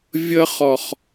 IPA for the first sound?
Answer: vʲ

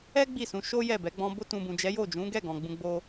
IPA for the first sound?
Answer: ɛ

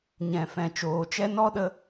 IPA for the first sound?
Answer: ɲ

